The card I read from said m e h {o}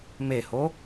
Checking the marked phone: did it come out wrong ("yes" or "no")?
no